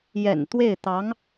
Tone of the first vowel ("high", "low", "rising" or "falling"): low